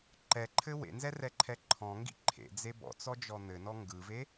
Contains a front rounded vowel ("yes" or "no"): no